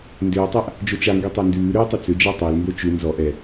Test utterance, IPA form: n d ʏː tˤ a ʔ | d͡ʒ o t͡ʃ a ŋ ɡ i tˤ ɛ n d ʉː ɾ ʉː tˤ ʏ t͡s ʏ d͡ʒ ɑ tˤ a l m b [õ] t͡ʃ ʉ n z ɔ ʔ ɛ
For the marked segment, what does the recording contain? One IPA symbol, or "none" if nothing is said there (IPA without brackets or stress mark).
o